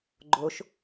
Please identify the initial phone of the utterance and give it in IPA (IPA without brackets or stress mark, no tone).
ɡ͡ǃ